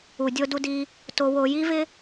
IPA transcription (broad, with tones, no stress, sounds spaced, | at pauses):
u˩ dʲ o˧ d u˧ d i˧ | t o˧ w o˧ j i˥ v ɪ˥